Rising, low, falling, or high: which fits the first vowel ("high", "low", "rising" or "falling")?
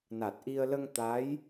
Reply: low